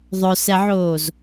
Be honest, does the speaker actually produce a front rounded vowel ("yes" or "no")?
yes